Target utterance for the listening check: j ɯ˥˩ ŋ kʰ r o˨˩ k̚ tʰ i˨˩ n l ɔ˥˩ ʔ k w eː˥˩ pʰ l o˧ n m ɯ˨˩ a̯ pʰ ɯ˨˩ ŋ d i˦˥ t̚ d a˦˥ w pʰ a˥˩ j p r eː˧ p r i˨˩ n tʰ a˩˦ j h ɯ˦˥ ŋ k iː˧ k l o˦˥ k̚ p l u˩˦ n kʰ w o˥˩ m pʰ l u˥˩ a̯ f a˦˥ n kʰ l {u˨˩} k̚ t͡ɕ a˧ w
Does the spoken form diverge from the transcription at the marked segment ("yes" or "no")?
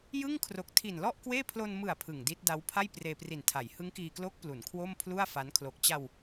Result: yes